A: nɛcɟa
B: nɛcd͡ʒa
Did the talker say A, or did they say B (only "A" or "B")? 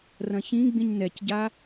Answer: A